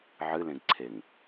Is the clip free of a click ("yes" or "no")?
no